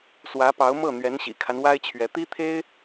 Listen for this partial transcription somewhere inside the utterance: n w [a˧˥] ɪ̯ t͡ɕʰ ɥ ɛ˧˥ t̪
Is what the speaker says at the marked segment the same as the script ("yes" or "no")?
no